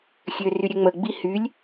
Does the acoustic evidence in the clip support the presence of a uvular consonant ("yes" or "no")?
no